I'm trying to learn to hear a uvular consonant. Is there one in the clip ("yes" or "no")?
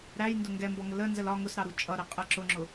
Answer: yes